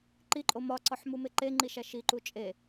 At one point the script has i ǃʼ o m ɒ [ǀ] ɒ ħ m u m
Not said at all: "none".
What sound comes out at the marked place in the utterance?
ǀ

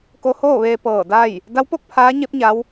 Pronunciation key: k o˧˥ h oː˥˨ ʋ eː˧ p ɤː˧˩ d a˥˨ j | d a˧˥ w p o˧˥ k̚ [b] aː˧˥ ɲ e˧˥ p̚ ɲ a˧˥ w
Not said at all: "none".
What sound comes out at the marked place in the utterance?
pʰ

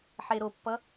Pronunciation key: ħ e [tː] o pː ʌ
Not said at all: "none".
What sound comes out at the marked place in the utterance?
ɾ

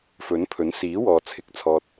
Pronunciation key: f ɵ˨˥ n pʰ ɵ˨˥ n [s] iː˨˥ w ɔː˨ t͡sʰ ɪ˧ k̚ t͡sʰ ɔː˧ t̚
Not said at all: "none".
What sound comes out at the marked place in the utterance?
s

